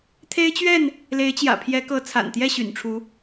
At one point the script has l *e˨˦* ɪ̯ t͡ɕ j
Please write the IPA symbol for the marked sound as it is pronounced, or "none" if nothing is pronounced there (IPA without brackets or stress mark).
e˨˦